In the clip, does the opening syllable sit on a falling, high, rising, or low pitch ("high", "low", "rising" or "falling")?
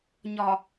low